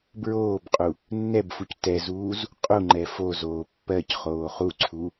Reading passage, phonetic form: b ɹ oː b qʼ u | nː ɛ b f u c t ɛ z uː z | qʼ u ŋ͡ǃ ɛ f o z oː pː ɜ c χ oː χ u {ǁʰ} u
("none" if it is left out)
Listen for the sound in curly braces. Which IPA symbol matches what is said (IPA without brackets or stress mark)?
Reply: ǀʰ